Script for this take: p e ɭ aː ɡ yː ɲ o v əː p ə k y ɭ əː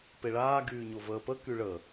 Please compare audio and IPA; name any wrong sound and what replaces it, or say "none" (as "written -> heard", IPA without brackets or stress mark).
none